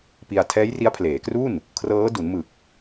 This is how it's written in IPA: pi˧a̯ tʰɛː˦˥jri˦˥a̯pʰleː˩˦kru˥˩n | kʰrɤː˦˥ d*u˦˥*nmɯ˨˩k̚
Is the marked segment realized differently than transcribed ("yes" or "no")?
yes